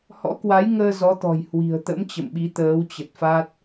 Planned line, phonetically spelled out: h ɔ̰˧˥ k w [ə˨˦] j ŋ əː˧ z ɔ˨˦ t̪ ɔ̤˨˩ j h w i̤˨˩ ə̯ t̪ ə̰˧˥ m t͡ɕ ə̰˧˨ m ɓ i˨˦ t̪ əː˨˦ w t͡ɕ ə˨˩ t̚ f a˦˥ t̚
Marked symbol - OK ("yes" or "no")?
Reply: no